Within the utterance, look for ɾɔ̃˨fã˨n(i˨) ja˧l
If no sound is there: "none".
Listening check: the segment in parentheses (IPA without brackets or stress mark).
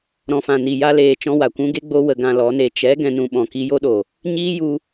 i˨